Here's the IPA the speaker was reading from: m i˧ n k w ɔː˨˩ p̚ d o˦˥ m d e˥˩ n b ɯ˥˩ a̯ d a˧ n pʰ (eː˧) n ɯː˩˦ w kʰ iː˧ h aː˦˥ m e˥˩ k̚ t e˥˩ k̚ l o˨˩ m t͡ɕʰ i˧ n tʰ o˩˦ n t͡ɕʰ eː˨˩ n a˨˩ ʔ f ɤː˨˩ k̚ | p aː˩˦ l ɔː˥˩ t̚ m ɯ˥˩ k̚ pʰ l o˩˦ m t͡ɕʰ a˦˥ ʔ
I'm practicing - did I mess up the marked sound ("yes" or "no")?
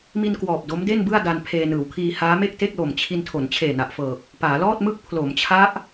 no